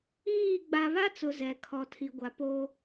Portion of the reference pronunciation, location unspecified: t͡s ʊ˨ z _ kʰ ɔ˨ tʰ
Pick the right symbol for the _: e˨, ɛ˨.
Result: ɛ˨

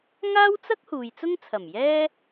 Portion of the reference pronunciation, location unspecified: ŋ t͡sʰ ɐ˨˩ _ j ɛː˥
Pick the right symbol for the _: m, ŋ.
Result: m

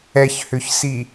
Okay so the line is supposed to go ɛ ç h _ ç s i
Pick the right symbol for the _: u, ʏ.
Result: ʏ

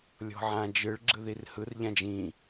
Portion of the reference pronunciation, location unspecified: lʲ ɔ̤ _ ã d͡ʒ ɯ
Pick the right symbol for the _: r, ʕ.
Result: ʕ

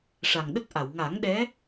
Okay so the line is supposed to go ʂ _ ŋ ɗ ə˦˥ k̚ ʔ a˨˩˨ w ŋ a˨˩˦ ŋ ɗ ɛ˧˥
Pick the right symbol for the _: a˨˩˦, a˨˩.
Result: a˨˩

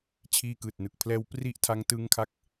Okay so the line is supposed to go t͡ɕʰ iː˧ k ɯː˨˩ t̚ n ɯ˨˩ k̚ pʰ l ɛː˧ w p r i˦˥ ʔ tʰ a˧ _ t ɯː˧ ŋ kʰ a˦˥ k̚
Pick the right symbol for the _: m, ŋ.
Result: ŋ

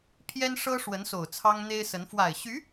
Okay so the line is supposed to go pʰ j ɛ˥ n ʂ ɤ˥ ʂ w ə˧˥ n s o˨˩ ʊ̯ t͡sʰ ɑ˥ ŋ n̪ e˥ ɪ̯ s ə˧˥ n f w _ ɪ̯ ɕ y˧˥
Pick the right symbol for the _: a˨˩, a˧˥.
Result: a˨˩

